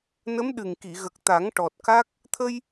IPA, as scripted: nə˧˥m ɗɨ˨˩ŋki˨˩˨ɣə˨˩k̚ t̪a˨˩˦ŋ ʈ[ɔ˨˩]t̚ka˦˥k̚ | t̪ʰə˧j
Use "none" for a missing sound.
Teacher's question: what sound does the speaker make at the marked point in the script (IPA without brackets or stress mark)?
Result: ɔ˨˩